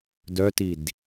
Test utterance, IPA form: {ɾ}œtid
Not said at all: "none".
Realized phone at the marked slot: d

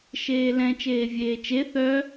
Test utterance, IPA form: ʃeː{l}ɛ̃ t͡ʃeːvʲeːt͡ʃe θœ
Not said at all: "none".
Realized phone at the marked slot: l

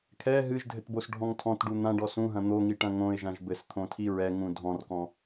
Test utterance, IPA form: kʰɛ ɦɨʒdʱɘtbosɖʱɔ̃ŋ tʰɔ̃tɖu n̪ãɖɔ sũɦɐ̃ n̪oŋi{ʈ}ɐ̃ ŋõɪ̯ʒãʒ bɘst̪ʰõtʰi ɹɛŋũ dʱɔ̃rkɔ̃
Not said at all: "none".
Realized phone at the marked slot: ʈ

